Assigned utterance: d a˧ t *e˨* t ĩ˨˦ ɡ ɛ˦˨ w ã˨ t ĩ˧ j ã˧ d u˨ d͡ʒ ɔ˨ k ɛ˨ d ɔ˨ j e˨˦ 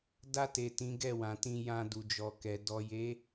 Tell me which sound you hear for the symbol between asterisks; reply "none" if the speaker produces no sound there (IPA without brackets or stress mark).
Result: e˨